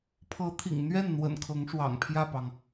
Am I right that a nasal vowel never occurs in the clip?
yes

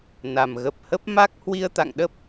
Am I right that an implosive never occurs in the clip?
no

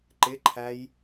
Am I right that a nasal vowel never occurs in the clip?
yes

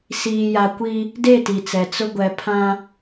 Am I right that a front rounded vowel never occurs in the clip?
yes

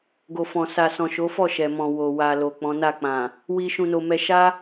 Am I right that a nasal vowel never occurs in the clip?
no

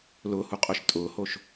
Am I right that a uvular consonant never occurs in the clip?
no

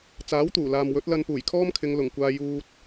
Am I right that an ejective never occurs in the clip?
yes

